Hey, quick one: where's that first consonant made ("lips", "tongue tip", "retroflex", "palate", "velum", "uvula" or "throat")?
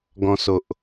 velum